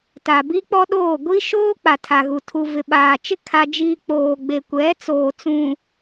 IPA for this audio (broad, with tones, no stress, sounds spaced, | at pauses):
t a˨ b i˦ k͡p ɔ˦ ɗ oː˦˨ ɡʷ i˦ ʃ oː˦ k͡p a˨ tʰ a˨ ɣ u˨ tʰ u˨ v ɪ˨ ɓ aː˨ t͡ʃ ɪ˦ kʰ a˦ d͡ʒ iː˦ k͡p oː˨ ɡ͡b e˨ kʷ ɛ˨˦ t͡s oː˨ t͡s ũ˨